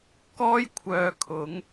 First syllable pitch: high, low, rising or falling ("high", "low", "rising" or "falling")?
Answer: high